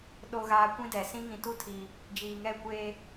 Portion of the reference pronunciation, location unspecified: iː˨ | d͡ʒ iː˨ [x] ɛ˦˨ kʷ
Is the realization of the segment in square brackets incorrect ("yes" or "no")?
yes